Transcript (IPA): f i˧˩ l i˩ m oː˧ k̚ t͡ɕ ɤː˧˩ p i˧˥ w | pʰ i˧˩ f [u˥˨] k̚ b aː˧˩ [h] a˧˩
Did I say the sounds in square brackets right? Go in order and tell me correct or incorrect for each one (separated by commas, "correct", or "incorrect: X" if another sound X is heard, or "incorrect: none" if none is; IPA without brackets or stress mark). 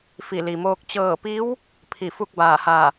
correct, correct